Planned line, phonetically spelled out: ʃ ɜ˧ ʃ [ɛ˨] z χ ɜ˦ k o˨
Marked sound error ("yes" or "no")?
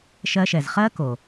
no